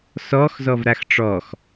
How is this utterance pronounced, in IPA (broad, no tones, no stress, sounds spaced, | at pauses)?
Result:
s ɔ x z ɔ v ɾ a x ʈ͡ʂ ɔ x